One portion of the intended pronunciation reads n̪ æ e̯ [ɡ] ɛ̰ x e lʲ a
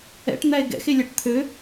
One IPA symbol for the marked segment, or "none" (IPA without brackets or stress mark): ɡ